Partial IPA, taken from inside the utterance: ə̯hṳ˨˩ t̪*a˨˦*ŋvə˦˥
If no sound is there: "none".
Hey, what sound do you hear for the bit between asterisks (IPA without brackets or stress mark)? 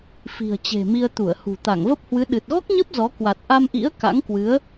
a˧˩